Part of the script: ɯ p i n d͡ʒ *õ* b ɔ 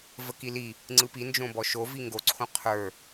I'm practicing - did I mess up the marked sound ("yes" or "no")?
no